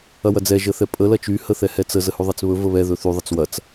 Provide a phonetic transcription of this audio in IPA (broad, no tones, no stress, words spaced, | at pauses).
ɐwɐd͡zɛ ʒəθɛpʼə lɐt͡ʃy həθɛhɛt͡sə zəhʉðˤet͡sβɵ vəβɛ ðɵθy ðˤət͡swɐt͡s